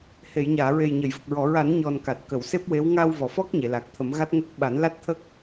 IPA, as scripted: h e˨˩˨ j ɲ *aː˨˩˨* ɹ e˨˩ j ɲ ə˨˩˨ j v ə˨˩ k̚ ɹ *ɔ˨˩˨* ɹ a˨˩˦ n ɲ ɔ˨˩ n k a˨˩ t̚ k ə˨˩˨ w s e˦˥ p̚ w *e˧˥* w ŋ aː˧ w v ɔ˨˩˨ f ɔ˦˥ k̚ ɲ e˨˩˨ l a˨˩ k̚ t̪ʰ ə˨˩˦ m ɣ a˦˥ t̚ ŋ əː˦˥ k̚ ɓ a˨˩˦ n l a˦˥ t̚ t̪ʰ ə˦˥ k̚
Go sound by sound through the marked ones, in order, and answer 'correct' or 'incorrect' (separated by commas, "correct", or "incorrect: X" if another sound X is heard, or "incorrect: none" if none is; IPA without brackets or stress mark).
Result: correct, correct, correct